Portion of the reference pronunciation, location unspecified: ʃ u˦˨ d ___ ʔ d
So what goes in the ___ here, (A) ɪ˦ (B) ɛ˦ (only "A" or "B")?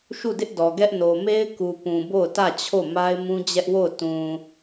A